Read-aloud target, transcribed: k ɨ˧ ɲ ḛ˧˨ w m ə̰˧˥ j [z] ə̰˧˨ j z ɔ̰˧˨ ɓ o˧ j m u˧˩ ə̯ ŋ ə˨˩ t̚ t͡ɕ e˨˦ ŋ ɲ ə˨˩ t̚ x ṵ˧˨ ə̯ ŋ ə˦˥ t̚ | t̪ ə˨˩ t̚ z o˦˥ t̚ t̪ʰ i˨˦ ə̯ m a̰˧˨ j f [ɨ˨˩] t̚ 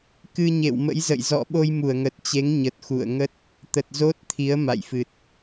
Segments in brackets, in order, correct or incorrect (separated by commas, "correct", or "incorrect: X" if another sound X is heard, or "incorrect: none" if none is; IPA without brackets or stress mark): correct, correct